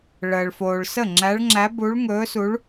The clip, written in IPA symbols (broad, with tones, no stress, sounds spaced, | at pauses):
ɭ əː˨ ɭ f oː˨ ɭ s ə˥˩ ŋ͡ǁ æ˧˥ ɭ ŋ͡ǁ æ˧˥ b u˧˥ ɭ ŋ ɵː˧˥ s u˧˥ ɭ